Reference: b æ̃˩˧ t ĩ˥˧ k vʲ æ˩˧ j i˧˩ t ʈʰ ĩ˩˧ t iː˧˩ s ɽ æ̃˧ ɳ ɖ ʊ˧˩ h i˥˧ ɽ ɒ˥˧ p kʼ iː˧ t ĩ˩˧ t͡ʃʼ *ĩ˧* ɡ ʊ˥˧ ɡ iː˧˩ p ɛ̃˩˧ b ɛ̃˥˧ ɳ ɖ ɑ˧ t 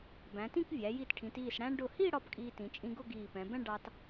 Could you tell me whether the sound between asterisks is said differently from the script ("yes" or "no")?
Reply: no